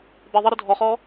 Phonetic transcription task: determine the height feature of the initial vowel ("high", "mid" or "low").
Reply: high